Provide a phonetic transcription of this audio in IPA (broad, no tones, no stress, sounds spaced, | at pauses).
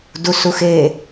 d u s u x e